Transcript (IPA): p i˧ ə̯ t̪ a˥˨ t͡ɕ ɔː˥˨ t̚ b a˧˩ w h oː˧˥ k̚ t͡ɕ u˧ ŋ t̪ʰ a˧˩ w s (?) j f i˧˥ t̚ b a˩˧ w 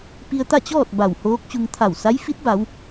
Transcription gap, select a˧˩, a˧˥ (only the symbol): a˧˥